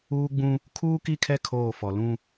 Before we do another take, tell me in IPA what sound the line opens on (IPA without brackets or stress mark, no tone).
uː